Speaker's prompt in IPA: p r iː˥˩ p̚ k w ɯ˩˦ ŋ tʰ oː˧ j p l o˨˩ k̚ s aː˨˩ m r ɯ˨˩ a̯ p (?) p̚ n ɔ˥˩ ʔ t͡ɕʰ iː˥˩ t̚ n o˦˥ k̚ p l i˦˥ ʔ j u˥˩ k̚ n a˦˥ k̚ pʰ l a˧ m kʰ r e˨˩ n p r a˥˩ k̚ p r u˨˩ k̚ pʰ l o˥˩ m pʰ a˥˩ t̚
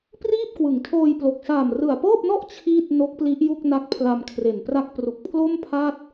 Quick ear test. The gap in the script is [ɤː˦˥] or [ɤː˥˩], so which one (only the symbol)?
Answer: ɤː˥˩